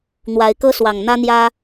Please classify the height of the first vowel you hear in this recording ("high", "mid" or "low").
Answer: low